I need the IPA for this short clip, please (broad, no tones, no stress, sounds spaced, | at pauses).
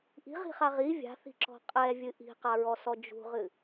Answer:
ʔ i̤ ʁ i̤ χ a ʁ i vʲ a̤ θ i̤ ǁ ɔ̤ qʼ ɛ vʲ ɨ ʔ i̤ q a ɹ ɔ s ɔ d͡ʒ ṳ ʁ ɨ